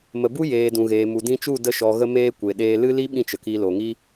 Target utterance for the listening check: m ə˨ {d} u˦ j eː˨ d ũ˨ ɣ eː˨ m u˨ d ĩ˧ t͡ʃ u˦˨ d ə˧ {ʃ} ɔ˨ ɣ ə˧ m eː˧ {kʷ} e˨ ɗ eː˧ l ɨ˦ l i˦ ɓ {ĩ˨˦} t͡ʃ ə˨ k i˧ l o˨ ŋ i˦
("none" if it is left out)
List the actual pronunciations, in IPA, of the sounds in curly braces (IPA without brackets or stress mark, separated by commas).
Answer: b, ʃ, kʷ, ĩ˧